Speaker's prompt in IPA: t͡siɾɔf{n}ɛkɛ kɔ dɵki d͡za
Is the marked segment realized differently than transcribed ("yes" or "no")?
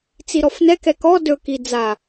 no